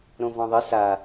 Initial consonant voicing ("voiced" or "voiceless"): voiced